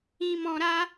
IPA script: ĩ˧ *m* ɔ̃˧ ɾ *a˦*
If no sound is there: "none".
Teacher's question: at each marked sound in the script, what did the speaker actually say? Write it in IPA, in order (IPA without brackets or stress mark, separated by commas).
m, a˦